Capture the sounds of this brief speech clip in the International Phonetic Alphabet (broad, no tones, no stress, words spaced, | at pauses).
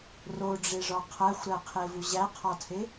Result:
roɖ͡ʐeʐɒ qʰæxʷɾæqʰevu ʑæqʰɒtʰe